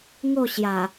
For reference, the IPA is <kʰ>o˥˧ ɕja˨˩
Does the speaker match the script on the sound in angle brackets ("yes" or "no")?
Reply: no